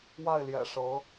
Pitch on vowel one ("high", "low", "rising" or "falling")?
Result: falling